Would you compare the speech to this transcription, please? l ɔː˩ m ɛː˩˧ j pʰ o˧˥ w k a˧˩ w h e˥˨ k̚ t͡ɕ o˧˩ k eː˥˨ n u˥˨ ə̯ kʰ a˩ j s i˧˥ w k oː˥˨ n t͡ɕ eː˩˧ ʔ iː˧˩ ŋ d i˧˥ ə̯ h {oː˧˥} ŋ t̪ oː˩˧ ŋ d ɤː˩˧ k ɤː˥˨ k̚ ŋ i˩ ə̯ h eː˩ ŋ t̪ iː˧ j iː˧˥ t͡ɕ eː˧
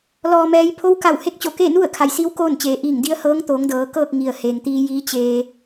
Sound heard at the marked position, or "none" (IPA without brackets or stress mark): ɤː˧˥